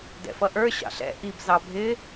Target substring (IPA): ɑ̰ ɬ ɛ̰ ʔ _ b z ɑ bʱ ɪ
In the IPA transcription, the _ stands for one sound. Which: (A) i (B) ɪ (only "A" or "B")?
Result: A